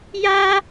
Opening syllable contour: high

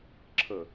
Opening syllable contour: low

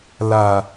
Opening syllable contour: low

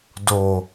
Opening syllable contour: low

